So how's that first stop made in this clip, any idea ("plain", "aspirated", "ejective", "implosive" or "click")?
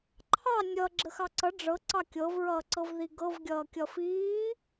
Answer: click